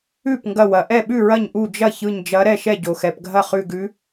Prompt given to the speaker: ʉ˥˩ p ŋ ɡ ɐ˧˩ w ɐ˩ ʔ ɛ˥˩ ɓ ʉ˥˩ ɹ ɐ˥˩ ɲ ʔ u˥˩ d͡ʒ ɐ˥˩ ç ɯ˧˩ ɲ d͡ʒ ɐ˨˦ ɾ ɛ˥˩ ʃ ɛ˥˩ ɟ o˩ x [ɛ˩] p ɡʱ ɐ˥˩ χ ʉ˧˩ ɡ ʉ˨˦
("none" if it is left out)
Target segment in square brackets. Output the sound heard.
ɛ˩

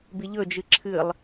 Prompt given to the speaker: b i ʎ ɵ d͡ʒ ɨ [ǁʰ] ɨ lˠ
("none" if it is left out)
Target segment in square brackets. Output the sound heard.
ǁʰ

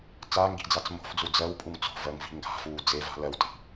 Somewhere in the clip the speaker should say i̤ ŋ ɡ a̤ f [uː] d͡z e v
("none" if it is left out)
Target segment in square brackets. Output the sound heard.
uː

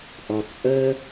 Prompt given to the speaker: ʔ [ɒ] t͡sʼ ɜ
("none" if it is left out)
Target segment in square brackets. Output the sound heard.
ɒ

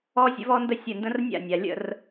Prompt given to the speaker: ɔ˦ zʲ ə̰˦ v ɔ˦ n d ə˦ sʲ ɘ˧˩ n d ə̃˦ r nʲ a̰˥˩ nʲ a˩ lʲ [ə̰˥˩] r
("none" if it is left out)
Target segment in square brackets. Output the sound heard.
ə̰˥˩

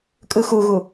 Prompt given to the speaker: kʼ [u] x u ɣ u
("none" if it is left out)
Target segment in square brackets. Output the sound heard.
ɯ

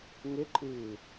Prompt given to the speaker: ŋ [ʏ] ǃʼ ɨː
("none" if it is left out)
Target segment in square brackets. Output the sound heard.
ʏ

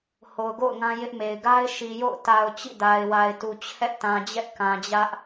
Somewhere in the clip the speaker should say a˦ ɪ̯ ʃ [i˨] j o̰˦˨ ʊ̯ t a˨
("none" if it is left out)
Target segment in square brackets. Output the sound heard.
i˨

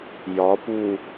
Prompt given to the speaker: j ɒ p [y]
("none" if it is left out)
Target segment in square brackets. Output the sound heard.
u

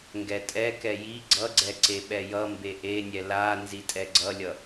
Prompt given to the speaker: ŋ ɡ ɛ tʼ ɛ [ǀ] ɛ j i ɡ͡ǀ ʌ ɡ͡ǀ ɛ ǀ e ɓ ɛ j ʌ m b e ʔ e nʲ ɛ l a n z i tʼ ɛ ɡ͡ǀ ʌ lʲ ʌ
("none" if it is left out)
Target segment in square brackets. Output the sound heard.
k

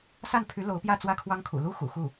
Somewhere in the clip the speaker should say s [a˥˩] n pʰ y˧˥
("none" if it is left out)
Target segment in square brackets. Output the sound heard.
a˥˩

